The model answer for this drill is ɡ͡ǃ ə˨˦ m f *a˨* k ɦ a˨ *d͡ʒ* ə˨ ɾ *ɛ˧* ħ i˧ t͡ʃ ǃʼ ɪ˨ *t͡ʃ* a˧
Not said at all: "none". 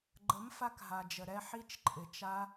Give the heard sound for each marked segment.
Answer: a˧, d͡ʒ, ɛ˧, t͡ʃ

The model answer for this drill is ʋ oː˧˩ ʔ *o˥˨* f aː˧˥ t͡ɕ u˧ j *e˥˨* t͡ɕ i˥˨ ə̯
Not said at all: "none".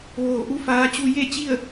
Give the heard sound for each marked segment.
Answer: u˥˨, e˥˨

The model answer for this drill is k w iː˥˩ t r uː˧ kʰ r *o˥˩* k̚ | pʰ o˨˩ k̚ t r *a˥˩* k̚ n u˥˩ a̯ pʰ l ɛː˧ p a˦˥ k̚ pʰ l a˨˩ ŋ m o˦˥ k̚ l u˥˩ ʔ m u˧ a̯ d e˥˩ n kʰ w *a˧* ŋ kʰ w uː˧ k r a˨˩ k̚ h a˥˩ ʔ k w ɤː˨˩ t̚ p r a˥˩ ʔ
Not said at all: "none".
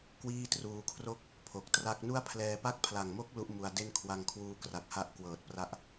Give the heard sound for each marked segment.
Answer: o˥˩, a˥˩, a˧

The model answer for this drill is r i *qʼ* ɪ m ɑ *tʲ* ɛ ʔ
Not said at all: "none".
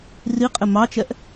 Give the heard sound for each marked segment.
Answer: qʼ, t͡ʃ

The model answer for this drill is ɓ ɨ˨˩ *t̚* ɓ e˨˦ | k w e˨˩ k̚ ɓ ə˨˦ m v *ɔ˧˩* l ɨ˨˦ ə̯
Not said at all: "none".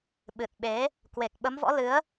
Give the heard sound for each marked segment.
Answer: t̚, ɔ̰˧˥

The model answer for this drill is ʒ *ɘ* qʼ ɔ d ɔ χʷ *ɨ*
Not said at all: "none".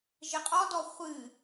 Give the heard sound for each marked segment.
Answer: ɘ, ɨ

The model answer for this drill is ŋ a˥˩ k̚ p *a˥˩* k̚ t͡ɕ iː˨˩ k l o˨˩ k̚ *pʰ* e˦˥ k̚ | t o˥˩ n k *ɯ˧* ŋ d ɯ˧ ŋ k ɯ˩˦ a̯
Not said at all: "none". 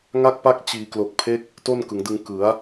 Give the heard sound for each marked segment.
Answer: a˥˩, pʰ, ɯ˩˦

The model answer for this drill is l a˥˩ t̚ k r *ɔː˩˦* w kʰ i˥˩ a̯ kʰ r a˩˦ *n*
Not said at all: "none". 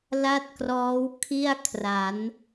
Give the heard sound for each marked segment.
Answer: ɔː˦˥, n

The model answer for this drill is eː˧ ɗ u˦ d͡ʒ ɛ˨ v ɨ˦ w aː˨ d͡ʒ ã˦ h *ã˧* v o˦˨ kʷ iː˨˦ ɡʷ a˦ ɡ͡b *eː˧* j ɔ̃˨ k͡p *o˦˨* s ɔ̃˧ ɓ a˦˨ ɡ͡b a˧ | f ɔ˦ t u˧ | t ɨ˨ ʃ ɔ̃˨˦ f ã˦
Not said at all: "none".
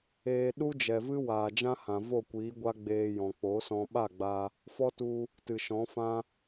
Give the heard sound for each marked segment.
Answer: ã˨, eː˧, o˨˦

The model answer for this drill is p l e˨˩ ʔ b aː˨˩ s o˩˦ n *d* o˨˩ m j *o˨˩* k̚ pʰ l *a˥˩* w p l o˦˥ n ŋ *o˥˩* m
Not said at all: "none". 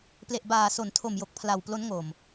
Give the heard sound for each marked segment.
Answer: tʰ, o˨˩, a˨˩, o˨˩

